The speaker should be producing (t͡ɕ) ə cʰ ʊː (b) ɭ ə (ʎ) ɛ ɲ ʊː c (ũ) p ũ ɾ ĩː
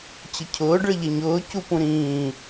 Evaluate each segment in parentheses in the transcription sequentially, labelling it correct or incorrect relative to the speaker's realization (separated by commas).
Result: correct, incorrect, correct, incorrect